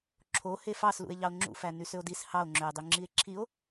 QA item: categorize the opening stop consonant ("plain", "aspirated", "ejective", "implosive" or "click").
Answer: click